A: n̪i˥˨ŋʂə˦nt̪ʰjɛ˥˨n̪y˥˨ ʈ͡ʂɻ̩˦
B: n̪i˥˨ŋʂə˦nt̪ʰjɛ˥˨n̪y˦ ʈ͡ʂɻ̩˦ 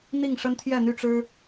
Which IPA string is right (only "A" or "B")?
A